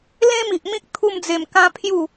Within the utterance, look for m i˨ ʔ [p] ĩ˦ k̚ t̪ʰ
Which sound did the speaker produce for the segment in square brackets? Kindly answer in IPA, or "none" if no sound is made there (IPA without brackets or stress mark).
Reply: m